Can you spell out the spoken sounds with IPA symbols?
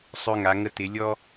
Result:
sˤ ø˧ ŋ a˩˧ ŋ ə˧ t ɪ˩˧ lʲ ɔ˥

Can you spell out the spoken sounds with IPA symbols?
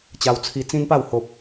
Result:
t͡ɕ a˧ w t͡sʰ i˧ t͡s ĩ˦ n p a˥˧ w h o˨ p̚

